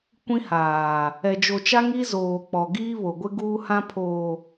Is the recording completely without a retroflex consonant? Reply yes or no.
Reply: yes